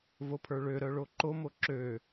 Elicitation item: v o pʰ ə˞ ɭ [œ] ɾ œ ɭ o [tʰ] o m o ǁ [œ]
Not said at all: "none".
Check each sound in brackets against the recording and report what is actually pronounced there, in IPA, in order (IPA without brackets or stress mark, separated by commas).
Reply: ø, ǃ, ø